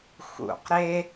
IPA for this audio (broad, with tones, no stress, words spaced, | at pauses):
xṵ˧˩qɾe˥